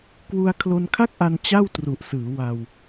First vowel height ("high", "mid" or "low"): high